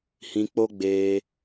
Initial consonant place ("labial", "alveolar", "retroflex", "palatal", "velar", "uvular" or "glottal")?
glottal